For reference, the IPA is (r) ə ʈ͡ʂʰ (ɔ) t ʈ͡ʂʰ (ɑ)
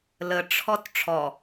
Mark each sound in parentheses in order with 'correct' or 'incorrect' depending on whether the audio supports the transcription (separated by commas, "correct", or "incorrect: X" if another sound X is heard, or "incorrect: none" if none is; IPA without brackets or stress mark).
incorrect: l, correct, incorrect: ɔ